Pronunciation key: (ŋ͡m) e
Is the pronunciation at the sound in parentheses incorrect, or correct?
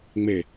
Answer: correct